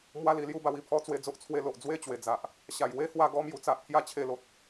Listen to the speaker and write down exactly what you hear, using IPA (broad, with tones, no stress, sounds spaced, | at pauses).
m w a˦ l i˧ l j u˦ b a˧ w i˥˧ pʰ ɔ˦ t͡s w e˥˧ d͡z o˦ ʔ t͡sʰ w e˦ l o˨ ʔ d͡z w e˥˧ t͡ɕ w e˨˩ d͡z a˨ ʔ | ɕ a˨˩ j w e˦ h w a˧ ɡ ɔ˧ m j u˧ t͡s a˨ ʔ pʰ j a˥˧ t͡ɕʰ e˧ l o˨ t̚